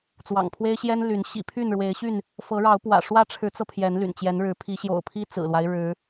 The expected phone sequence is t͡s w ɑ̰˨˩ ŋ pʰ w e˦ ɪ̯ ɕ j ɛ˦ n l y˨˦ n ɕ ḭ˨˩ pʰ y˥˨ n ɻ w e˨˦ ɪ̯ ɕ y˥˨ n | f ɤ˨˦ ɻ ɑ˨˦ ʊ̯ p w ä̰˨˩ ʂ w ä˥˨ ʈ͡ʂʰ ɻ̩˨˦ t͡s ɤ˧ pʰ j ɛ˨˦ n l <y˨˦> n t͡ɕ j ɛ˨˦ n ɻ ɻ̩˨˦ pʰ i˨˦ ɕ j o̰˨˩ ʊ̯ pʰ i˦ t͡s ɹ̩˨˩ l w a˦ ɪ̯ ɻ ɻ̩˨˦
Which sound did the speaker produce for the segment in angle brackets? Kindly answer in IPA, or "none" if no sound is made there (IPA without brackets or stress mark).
y̰˨˩